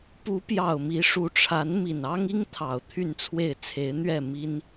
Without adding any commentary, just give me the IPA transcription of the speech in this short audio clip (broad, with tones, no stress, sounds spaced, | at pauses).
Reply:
p u˧˥ p j ɑ˨˩ ʊ̯ m i˧˥ ʂ u˧˥ ʈ͡ʂʰ a˧˥ n m i˨˩ n ɑ˥ ŋ i˥ ŋ t̪ʰ ɑ˨˩ ʊ̯ t̪ʰ y˥˧ n t͡sʰ w e˥˩ ɪ̯ t͡sʰ e˧˥ ɪ̯ n̪ ɥ ɛ˥˩ m i˥ n